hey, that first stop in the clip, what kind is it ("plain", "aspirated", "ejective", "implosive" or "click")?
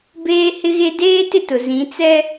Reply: plain